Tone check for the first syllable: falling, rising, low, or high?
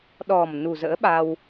low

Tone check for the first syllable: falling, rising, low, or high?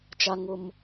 high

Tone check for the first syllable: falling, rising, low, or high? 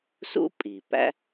high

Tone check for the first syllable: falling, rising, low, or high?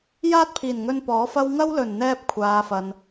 high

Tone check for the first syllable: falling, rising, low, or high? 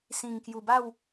low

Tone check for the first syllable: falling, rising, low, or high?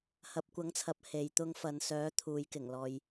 rising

